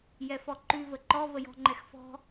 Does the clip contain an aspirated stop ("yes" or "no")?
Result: no